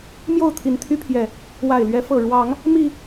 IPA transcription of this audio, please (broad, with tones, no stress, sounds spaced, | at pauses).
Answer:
m j o˥˨ ʊ̯ t̪ʰ i˨˦ n t̪ʰ y˦ pʰ j ɛ˨˩ | w a˨˩ ɪ̯ l ɥ ɛ˨˦ f ɤ˨˩ ɻ w ɑ˨˦ ŋ | m i˨˩